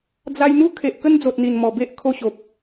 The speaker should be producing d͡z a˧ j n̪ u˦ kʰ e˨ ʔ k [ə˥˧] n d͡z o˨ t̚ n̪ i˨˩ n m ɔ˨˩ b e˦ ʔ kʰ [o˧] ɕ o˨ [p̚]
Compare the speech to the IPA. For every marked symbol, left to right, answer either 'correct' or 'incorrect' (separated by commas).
incorrect, correct, correct